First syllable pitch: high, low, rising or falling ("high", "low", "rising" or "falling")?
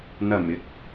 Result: low